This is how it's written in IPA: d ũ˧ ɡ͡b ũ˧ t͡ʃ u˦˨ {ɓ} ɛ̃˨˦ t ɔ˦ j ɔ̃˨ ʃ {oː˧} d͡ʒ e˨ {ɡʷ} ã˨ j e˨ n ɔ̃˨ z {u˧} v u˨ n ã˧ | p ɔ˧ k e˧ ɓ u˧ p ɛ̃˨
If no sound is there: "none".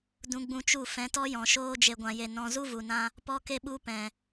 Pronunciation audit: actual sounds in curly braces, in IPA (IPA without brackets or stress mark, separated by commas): f, oː˧, ɡʷ, u˦